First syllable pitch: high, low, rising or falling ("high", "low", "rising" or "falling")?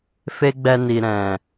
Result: high